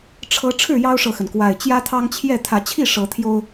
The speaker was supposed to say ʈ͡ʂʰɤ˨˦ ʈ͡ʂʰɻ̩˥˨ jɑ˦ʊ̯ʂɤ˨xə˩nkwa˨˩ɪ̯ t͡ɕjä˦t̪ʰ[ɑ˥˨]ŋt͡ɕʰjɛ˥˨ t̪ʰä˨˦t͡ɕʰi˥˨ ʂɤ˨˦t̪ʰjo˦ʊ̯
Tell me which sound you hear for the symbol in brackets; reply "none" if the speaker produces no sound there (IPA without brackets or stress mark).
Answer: ɑ˦